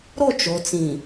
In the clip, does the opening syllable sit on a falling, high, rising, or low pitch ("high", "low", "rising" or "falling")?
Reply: falling